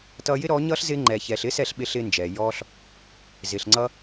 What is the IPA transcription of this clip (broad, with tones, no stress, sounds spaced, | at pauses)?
t ʌː˧ j ɪ˦ ɾ ɔː˨˦ ɲ ʌː˦ ɬ z ɪː˧ ŋ͡ǃ ɛː˨ ç ɛː˨ ɬ ɪː˦ s ɛ˦˨ ɬ ɓ ɪ˧ ɬ ɪː˧ n d͡ʒ ɛː˨ j ɔː˧ ɬ | z ɪ˨ ɬ ŋ͡ǀ ʌ˦